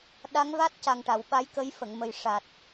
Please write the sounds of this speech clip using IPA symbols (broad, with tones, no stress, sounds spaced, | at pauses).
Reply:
ɗ a˧˥ ŋ v a˦˥ t̚ c a˨˩ ŋ ʈ a˨˩˨ w ɓ a˧˥ j k ə˧˥ j f ə˨˩˨ ŋ m ə˨˩ j ʂ a˨˩ t̚